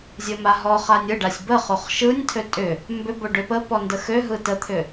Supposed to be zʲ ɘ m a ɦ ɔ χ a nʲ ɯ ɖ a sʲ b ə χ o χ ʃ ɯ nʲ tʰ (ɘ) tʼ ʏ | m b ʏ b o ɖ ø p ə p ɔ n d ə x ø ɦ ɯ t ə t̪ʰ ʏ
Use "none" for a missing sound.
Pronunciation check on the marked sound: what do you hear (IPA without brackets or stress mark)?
ø